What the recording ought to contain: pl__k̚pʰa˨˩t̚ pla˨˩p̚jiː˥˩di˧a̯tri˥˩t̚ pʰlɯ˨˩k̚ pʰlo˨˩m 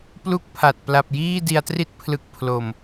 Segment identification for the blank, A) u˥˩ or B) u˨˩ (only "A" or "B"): A